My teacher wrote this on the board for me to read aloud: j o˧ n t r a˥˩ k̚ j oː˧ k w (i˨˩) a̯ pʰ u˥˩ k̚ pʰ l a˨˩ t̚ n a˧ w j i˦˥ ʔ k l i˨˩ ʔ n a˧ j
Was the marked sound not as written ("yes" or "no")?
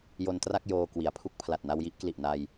yes